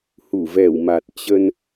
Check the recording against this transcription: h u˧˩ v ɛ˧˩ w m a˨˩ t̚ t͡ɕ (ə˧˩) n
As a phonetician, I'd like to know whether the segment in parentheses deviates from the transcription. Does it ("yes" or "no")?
yes